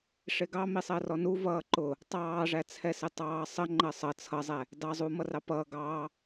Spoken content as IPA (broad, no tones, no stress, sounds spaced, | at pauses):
ʂ ɪ ɡ ɑ m i sˤ ɜ r ɔ n u v ʌː ǃ ʊ | tˤ ɑː ʐ æ t͡sʰ ɛ s ɪ tˤ ɑː sˤ ə ŋ͡ǃ ɜ sˤ ʌ t͡sʰ ʌ zˤ ɛ | d ɑ zˤ uː m ʌ r ɑ p ʌː ɡ ɑː